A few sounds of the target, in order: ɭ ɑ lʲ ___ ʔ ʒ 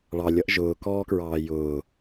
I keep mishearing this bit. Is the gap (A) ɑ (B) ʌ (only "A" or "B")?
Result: B